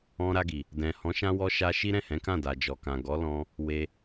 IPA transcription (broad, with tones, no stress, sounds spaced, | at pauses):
ɔ̃˧ ɾ a˧ ɡ i˨ | d ɛ̃˨ h ɔ̃˨˦ ʃ ã˧ w ɔ˧ ʃ a˧ ʃ i˦ ɾ ɛ̃˦˨ h ɛ̃˨˦ k ã˦˨ d a˨ d͡ʒ ɔ˨ k ã˨ ɡ ɔ˨˦ l ɔ̃˧ | w e˧